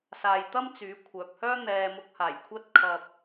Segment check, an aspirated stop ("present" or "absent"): present